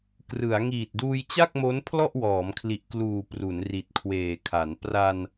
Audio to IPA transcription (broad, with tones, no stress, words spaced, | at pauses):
krɯ˩˦a̯ ŋiː˨˩t̚duː˧jt͡ɕa˥˩k̚ mo˦˥npʰlɔ˥˩ʔwɔː˩˦mkʰli˨˩ʔ kluː˨˩ pru˩˦nri˨˩t̚kʰweː˨˩kʰa˩˦n pra˧n